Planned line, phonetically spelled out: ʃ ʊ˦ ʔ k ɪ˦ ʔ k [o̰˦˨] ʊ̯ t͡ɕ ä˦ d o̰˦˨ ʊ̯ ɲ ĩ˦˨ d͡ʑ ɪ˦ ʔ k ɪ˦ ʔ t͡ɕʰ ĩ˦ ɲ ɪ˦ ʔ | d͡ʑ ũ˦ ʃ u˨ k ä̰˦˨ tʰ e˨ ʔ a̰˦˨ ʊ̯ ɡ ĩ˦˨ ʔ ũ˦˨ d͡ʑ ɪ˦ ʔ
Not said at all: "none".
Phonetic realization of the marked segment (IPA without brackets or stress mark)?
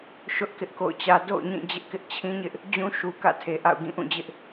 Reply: o̰˦˨